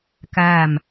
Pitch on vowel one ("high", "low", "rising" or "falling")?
falling